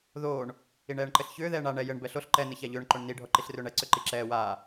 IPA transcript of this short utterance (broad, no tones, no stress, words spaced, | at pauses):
ðoːɳ | iɳɛːɳǃɘɬçʏː ðɛːɳa ɳɛ jɘɳ bɛɬoɬ ǃɛ nɘçaʎʏːɳ ǃoɳni ɖʱɔǃiɬrʏːɳɛ ǀʏǃiǁɛː waː